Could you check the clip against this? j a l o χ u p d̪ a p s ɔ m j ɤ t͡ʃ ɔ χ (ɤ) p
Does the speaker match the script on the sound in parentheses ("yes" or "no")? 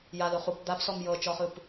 no